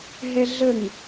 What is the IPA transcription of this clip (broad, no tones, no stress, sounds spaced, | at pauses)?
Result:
ɦ ɛ ɮ ə ŋ